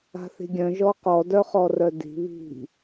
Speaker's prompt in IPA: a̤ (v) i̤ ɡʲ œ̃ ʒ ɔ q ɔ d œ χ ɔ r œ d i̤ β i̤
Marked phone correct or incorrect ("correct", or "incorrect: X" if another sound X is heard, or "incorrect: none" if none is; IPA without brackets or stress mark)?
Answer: incorrect: θ